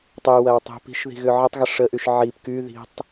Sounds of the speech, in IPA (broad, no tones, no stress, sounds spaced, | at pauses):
tˤ i w ɐ w tˤ i̤ p i̤ ʃ ð i̤ ɣ ʏ ʕ ə tˤ ɣ ə ʂ ə ʔ y ʃ ʕ i p k y ð i̤ tˤ